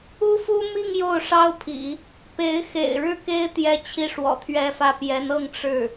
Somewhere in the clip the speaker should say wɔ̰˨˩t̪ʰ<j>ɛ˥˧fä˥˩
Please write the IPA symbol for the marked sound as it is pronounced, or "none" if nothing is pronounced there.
ɥ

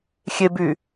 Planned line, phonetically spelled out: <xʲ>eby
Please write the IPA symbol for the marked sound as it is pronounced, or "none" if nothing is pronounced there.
xʲ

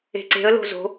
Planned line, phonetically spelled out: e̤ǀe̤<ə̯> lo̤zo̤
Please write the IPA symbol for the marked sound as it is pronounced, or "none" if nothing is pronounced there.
ə̯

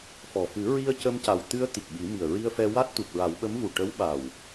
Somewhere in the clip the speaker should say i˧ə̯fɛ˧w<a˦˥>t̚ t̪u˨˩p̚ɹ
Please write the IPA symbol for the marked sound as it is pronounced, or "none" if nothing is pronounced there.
a˦˥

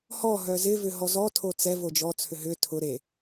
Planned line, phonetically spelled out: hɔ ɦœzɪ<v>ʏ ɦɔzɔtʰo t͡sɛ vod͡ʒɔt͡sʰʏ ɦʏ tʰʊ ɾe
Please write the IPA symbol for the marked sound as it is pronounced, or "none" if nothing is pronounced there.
v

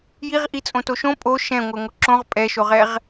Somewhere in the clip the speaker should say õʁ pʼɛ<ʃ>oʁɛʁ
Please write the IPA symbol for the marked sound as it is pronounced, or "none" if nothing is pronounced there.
ʃ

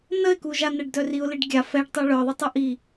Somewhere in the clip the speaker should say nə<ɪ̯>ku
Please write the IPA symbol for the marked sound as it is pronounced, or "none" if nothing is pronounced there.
ɪ̯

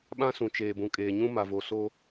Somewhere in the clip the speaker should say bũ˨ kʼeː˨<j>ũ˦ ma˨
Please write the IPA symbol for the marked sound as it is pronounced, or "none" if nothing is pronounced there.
ɲ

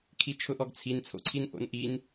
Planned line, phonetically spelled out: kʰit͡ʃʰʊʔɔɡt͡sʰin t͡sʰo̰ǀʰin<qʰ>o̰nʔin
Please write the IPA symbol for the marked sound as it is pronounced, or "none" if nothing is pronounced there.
ʔ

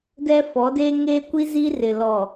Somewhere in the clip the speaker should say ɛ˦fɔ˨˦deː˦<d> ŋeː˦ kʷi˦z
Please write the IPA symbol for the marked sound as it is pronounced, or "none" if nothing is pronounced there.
none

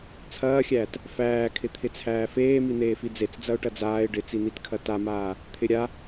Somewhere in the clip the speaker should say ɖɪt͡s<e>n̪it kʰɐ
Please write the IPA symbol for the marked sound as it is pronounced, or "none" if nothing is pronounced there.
i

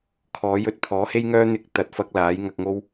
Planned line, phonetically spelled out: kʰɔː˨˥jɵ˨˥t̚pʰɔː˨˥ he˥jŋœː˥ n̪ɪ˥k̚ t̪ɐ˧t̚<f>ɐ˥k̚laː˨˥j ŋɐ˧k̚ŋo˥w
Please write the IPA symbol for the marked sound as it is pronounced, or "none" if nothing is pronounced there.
f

